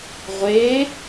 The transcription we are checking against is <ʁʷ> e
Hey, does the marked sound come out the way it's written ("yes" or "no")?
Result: yes